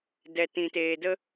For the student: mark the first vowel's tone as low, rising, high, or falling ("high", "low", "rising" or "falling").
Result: low